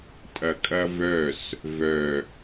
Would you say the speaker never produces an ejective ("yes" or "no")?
no